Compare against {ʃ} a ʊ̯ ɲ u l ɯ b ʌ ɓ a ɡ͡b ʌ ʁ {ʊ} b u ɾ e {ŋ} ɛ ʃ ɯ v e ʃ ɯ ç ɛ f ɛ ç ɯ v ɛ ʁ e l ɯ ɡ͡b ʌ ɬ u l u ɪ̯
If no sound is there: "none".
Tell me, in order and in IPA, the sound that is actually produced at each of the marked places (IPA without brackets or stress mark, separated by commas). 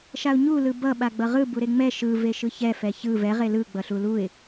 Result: ʃ, ɯ, ŋ͡m